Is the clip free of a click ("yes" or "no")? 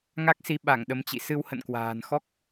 yes